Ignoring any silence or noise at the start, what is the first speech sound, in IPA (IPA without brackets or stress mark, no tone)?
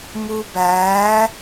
m